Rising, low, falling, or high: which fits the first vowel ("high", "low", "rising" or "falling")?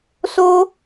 high